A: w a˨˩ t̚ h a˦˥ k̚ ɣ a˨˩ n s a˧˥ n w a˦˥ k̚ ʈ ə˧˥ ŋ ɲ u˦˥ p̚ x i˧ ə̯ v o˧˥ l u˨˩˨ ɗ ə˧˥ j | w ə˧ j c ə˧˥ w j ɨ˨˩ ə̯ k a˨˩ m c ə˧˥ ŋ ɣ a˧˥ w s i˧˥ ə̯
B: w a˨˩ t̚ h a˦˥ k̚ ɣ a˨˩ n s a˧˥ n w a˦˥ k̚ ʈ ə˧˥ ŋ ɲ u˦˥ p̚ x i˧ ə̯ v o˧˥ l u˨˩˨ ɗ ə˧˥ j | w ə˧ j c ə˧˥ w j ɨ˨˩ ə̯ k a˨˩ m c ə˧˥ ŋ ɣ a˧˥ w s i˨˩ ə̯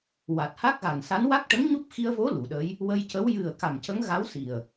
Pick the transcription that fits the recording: B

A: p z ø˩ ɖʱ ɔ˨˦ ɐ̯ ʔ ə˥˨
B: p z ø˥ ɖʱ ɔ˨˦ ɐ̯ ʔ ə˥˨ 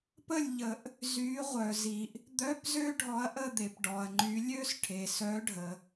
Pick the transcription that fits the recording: B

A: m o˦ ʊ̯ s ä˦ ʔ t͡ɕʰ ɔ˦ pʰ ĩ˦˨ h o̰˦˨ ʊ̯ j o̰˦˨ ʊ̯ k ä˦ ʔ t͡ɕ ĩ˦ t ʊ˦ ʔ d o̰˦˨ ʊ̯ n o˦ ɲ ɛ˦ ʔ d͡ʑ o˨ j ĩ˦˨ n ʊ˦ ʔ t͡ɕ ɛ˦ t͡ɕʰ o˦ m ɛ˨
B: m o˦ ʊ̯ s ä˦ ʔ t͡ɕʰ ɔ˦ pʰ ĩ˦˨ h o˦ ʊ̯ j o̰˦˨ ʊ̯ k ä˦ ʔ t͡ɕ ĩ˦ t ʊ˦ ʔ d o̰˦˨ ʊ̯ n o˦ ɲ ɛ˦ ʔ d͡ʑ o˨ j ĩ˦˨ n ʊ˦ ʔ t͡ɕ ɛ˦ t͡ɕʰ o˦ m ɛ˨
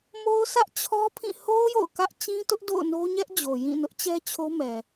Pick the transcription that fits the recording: B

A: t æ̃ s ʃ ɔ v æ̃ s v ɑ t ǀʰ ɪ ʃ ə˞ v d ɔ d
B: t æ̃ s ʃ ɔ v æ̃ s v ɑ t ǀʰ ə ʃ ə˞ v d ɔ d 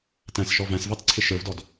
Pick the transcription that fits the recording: A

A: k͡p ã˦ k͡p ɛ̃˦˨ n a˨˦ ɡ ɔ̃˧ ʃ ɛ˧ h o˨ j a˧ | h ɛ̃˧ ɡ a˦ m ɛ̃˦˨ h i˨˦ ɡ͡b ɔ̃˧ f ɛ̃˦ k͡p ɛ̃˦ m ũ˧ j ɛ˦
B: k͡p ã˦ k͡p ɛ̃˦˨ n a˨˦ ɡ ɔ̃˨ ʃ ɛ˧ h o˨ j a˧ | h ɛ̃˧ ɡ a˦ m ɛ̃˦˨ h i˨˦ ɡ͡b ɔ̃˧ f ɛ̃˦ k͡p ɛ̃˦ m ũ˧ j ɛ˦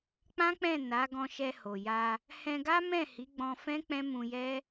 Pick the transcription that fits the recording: A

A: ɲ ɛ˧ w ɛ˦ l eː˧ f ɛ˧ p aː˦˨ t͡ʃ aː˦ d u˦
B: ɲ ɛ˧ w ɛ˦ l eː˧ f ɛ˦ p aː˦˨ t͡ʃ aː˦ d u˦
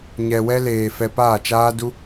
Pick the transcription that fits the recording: A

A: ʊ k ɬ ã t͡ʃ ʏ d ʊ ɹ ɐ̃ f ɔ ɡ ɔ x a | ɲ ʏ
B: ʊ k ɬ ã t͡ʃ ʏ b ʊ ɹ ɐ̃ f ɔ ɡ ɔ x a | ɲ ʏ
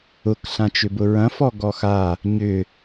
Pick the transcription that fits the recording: B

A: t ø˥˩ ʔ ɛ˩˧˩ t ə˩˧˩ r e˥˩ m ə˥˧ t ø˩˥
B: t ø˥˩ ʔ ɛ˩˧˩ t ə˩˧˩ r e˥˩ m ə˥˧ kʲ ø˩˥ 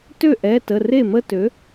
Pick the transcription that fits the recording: A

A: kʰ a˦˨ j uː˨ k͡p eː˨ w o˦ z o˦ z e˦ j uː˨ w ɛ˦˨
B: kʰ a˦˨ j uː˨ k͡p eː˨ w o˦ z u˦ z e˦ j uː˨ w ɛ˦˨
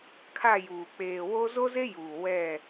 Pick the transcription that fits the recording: A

